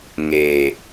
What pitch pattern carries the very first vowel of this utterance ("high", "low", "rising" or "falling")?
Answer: low